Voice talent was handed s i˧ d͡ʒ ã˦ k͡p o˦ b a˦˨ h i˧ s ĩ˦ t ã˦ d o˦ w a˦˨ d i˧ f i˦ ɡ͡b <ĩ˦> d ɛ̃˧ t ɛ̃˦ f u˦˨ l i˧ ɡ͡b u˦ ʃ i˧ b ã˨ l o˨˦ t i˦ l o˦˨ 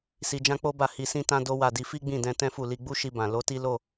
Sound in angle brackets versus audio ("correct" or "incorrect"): incorrect